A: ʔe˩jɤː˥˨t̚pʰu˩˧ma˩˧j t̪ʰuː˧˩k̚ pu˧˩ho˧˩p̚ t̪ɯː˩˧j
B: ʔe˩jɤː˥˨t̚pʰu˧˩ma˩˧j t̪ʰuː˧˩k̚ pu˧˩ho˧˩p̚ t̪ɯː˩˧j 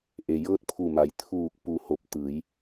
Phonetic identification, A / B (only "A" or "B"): B